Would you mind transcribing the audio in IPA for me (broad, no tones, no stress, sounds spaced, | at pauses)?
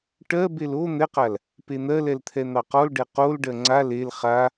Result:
ʈ ɜ b e l o n̪ ɛ q a l | p e n̪ ɜ l ɛ l t̪ʰ ɛ n̪ ɑ q ɔ l ɖ ɛ q o l ɖ ɜ ŋ͡ǀ a l e l χ a